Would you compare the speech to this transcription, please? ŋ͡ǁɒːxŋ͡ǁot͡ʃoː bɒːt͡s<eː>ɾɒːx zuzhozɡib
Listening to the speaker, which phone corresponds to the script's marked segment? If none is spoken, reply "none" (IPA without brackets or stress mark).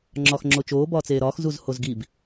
eː